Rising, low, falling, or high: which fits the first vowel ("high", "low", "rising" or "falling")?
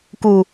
low